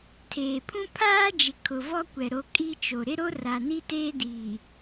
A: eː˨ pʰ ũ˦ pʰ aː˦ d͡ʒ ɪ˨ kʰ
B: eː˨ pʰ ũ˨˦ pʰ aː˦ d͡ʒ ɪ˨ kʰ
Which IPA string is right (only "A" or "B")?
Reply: A